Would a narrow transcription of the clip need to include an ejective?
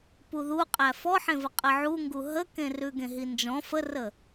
yes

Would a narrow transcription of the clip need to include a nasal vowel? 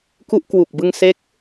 no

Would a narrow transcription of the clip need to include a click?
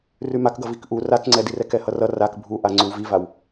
yes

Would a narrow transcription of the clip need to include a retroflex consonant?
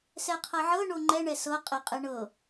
yes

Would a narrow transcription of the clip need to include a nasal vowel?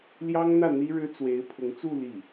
no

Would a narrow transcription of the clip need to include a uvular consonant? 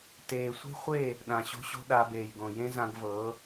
yes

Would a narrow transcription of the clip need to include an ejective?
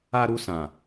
no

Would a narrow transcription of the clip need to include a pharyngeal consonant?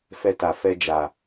no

